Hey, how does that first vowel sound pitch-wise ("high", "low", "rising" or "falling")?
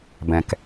low